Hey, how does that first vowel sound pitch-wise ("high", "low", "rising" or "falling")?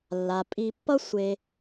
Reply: low